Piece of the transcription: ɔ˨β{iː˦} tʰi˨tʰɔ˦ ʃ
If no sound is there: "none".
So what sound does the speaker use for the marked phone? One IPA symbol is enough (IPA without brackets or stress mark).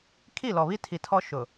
i˦